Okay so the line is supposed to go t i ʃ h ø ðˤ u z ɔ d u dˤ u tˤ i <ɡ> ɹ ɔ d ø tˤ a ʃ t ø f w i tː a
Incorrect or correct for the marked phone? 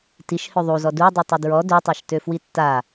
incorrect: d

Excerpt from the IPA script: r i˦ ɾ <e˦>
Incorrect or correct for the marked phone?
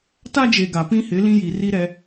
incorrect: ɛ˦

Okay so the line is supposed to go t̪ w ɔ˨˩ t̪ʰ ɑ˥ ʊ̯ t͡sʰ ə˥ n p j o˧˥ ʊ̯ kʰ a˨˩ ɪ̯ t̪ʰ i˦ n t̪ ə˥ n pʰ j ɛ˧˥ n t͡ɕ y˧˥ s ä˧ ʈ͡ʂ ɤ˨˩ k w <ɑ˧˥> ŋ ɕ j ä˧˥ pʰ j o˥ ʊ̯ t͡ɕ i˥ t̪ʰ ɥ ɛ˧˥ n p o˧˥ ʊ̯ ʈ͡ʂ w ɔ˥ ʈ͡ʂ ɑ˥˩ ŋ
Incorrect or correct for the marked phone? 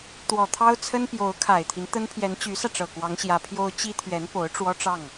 correct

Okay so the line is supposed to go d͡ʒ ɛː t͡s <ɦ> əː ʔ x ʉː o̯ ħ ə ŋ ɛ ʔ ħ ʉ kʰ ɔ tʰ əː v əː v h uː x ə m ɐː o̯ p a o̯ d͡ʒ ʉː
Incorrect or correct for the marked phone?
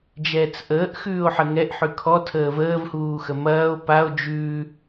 incorrect: ʔ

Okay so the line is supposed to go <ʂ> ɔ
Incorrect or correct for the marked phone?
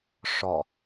correct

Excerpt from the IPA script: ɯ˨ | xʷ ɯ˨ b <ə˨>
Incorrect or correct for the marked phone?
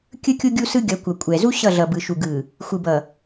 incorrect: ʌ˨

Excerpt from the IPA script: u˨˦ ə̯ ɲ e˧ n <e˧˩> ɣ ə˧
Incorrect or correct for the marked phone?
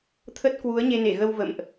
correct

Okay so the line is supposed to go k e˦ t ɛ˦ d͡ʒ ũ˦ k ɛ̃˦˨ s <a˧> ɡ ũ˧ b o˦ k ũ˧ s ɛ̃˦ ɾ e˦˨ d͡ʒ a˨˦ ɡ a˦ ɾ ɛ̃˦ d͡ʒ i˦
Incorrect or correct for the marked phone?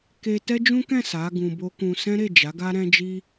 incorrect: a˨˦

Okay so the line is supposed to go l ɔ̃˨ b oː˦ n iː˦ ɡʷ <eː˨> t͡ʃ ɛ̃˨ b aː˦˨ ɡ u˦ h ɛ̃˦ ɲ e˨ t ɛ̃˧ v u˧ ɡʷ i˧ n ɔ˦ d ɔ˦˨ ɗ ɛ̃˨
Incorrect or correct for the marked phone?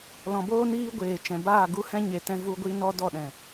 correct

